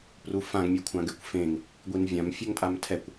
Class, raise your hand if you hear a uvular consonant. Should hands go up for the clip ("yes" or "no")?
no